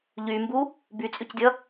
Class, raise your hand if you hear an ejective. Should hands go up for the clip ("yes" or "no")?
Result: yes